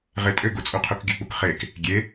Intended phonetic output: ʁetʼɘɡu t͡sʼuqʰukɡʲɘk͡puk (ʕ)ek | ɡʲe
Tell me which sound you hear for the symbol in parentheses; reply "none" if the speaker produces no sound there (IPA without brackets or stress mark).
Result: χ